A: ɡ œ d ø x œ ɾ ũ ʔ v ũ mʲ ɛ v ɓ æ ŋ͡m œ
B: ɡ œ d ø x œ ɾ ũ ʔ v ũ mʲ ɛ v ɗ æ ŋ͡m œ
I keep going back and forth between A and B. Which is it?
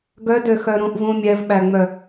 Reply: A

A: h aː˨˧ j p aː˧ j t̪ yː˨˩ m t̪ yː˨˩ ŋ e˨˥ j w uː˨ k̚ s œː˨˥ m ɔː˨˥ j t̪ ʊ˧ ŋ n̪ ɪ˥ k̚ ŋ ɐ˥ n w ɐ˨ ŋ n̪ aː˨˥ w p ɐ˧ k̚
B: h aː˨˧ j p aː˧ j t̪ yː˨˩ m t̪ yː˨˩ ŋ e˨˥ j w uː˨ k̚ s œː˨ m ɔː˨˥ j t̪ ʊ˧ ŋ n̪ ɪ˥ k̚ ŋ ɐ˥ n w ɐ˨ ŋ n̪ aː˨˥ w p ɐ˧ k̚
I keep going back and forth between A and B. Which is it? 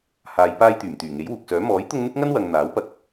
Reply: A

